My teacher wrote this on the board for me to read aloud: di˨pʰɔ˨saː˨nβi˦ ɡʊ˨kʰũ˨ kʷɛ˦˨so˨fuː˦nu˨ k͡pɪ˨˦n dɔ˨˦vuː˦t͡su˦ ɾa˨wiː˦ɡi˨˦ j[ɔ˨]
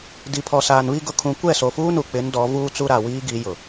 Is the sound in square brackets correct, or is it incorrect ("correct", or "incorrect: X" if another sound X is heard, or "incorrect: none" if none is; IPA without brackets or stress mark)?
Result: incorrect: ʊ˨